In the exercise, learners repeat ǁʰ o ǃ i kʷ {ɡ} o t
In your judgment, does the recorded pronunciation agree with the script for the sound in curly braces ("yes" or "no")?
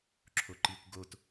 yes